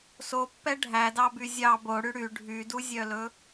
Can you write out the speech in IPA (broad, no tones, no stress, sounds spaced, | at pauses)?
s o pː ɛ ɖʱ æ d ɑ b y zʲ ɑ b o ɽ y ɽ y ɖʱ y d u zʲ œ l ɵ